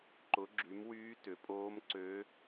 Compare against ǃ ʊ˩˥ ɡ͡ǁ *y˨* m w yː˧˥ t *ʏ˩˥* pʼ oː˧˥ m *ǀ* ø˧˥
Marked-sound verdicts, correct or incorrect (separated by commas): incorrect, correct, correct